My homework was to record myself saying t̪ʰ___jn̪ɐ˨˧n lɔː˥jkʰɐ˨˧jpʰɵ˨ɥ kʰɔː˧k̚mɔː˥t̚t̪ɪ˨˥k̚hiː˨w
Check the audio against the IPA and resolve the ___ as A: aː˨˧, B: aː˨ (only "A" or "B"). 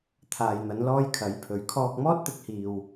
B